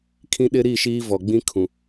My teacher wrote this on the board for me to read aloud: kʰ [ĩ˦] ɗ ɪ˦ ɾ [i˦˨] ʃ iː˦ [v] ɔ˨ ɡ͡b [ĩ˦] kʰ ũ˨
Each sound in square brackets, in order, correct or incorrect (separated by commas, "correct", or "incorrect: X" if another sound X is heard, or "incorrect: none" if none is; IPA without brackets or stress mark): correct, correct, correct, correct